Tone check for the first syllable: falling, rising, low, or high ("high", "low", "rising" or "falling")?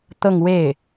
falling